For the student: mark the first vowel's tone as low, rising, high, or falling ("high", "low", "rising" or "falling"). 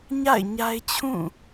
falling